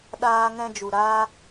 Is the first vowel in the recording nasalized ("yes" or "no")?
no